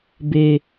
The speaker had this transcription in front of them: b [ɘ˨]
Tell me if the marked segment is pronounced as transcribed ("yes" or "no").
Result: no